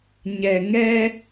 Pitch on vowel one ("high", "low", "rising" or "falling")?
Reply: low